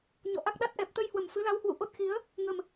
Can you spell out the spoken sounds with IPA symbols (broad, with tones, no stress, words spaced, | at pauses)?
ɲɔ̰˧˨ʔa˦˥k̚ɗa˦˥t̚ ʔɛ˨˩p̚t̪ə˧jhwə˨˩m fɨ˨˦la˨˦whwṵ˧˨ ʔo˦˥t̚xi˨˦ə̯ | ŋə˨˩m